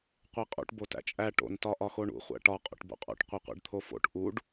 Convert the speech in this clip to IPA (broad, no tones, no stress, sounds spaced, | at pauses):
qʷ e qʼ ṵ ʈ b o t æ̰ t͡ʃʼ æ ʈ o̰ n t ɒ ʔ ɒ x o ɳ ṵ χʷ æ̰ ʈ ɒ qʼ o̰ ʈ b o̰ qʼ o̰ ʈ qʷ e qʷ ḛ ɖ t̪ʰ o f o̰ ʈ ʔ u ɖ